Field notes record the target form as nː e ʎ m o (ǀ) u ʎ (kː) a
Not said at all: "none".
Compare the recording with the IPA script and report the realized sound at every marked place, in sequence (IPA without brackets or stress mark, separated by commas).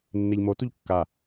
t, kː